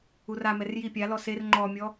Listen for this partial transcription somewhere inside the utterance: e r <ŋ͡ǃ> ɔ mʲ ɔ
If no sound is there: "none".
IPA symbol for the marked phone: ŋ͡ǃ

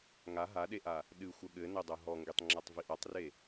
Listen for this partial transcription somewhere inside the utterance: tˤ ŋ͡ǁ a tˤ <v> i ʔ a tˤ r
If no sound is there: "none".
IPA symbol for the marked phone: v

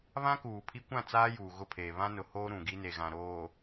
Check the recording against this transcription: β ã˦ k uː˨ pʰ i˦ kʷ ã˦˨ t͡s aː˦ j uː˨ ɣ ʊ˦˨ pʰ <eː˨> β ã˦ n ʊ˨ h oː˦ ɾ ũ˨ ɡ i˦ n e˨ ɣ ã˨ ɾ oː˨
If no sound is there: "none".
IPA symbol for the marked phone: eː˨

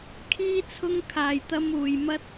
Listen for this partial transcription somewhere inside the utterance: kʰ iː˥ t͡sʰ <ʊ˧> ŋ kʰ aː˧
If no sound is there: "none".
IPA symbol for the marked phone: ʊ˥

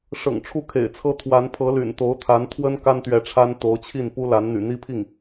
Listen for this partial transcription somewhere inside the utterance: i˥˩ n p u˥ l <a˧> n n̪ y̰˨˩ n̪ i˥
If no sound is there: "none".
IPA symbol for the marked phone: a˧˥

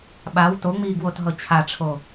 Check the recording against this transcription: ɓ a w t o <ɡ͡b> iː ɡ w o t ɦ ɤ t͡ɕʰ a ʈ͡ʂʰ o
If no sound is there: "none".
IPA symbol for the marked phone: ŋ͡m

